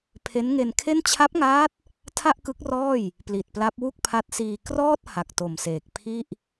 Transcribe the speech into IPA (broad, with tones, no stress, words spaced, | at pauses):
pʰe˦˥nŋe˧nkʰe˥˩n t͡ɕʰa˦˥p̚ŋaː˦˥t̚ | tʰa˥˩ʔkɯ˦˥k̚rɔː˥˩j | pli˨˩t̚pla˦˥p̚ wu˥˩k̚pʰa˦˥t̚siː˧ krɔː˥˩t̚ ha˨˩k̚to˨˩mseː˨˩k̚ pʰi˥˩ʔ